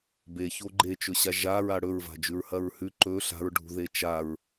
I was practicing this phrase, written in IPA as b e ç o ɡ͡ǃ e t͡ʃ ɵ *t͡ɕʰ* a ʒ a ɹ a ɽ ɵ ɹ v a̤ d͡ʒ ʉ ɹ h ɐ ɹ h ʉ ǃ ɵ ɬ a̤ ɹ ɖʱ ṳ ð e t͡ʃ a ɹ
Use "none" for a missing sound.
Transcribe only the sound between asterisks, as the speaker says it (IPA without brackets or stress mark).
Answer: ɕ